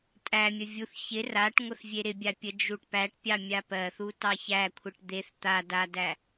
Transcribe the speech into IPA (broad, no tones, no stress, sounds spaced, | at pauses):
tʼ æ mʲ ə vʲ u θ ç ɪ r a ʈ ŋʷ ə θ vʲ e ɾ ɪ bʲ a pʲ ə d͡ʒ u ʈ p æ ʈ pʲ ɑ mʲ a p ɜ θ u t ɑ ç æ kʷʰ ɪ ʈ d̪ e θ t̪ a d a d æ